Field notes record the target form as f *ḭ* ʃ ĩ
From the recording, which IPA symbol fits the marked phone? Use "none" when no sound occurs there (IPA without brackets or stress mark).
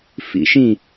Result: ḭ